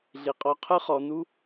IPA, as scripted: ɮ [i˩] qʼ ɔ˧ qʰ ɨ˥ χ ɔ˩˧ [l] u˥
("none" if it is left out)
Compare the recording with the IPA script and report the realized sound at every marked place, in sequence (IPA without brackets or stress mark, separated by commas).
i˩˧, n